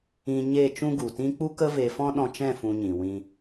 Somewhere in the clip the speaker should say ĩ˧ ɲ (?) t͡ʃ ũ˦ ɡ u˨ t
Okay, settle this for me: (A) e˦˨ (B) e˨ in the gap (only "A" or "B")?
A